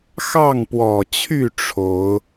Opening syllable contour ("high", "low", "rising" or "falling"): falling